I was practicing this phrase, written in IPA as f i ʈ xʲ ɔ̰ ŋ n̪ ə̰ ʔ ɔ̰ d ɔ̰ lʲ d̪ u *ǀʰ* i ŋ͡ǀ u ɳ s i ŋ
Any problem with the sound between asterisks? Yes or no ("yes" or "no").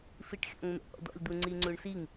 yes